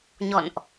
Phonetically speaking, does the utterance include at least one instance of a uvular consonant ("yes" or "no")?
no